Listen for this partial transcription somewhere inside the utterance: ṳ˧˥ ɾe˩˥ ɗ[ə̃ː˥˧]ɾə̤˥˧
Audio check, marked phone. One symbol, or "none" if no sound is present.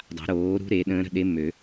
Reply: ə̃ː˧˥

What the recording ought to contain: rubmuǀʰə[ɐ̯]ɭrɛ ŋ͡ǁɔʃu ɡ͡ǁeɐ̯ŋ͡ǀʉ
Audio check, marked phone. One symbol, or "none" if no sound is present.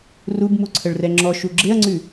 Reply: none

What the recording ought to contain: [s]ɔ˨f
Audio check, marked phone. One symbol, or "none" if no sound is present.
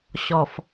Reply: ɕ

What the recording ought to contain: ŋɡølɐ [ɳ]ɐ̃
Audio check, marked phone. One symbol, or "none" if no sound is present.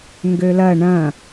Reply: ɳ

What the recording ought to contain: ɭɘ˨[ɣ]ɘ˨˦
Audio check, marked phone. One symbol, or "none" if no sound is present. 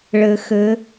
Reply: x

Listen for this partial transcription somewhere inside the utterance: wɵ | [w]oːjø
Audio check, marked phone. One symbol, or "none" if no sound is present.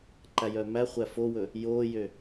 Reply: j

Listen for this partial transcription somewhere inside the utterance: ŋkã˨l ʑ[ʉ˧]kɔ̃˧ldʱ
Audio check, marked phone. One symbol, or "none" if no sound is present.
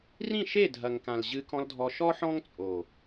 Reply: ɨ˧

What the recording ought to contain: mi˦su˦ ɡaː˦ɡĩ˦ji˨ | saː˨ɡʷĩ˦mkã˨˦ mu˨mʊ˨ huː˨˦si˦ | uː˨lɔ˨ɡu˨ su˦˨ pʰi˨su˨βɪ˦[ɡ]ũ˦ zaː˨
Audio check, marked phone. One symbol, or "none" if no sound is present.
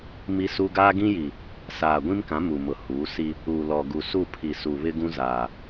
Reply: ɡ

